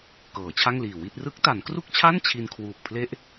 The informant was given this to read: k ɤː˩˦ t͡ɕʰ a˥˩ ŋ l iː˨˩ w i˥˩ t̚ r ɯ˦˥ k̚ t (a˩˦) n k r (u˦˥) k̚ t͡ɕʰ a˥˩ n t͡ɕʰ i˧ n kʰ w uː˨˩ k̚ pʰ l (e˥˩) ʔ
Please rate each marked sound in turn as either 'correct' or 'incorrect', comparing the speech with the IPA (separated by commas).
correct, incorrect, correct